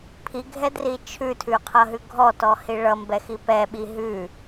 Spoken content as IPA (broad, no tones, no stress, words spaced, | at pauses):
pʰiɡʱɛdri t͡ʃʰʉtʰʉqʰʌɦʉ ɡʱɔtɔhi ɭʌmbɛxi pɛɓi ɦʉ